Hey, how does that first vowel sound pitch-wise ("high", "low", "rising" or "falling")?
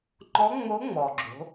rising